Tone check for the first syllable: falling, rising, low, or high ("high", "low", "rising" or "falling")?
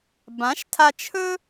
rising